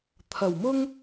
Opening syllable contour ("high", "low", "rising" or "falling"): low